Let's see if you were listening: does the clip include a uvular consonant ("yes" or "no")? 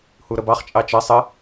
yes